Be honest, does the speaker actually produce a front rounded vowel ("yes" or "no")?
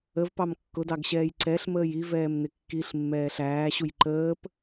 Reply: no